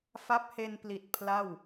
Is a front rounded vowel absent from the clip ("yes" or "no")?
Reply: yes